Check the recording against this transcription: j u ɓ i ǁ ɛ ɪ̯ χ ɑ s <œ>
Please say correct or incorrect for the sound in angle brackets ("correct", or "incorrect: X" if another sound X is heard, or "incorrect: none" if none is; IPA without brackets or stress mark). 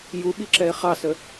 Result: incorrect: ə